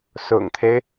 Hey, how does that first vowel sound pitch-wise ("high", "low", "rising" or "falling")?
low